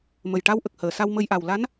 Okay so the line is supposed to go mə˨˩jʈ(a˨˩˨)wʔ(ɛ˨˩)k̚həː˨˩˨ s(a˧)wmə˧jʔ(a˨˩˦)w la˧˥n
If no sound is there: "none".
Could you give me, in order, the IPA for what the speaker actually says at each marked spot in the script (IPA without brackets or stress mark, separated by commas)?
a˧, ə˨˩, a˧, a˨˩